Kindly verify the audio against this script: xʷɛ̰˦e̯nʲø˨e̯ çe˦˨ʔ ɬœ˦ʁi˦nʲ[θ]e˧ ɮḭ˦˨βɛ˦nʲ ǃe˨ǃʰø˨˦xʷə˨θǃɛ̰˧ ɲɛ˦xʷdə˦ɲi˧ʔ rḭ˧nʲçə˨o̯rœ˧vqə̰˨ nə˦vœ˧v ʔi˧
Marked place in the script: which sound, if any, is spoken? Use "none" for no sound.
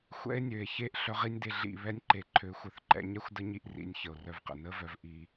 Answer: d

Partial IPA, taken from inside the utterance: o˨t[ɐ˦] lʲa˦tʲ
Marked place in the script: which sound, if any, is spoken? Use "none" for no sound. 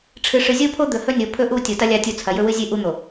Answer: ɐ˦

